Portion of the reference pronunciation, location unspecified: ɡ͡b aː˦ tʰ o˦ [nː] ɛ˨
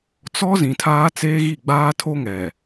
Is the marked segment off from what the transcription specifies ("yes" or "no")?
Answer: yes